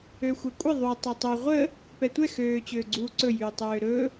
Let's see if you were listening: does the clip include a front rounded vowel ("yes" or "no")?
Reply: yes